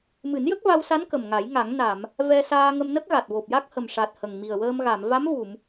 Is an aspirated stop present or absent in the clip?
absent